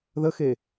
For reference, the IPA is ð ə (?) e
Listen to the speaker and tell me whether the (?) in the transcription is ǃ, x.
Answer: x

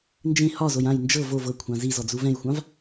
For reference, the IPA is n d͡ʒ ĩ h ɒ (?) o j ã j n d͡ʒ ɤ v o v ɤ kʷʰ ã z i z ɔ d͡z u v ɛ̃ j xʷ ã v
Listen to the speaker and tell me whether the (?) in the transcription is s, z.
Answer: z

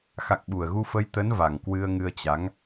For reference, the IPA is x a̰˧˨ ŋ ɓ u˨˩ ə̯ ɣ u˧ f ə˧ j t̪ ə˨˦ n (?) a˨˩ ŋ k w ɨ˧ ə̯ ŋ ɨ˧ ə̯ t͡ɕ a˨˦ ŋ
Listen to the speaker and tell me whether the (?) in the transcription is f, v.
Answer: v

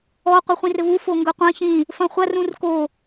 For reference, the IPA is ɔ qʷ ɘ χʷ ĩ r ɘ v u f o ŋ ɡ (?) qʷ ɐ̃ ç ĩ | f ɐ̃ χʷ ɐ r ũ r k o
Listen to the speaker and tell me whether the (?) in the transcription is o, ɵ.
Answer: ɵ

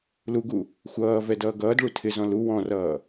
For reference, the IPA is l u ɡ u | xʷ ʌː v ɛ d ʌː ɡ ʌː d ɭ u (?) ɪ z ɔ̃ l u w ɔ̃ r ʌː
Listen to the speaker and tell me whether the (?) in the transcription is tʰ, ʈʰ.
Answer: tʰ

